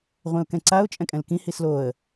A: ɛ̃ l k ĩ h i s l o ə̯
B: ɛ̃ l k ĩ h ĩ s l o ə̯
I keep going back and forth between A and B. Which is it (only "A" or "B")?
A